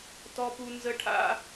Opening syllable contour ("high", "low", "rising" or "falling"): high